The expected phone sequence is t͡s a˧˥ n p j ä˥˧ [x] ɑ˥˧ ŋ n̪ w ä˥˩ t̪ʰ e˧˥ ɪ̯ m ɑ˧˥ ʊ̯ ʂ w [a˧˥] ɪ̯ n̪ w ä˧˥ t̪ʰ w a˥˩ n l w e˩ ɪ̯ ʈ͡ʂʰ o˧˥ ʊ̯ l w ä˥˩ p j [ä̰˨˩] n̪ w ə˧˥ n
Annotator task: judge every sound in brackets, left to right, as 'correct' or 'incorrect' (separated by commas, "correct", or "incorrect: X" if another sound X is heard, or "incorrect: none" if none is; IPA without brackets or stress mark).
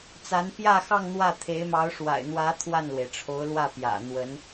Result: correct, incorrect: a̰˨˩, correct